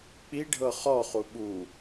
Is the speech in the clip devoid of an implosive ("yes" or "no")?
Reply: no